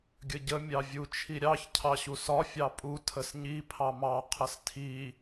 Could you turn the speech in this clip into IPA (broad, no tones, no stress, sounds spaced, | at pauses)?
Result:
ɡʲ ə ɟ ə mʲ ɑ vʲ u t͡ʃʰ i ɾʲ ɑ ç cʰ ɑ ɕ u s ɒ fʲ ɑ pʼ u tʰ ə s ɲ i pʰ ɑ m ɑ qʰ ə s tʰ i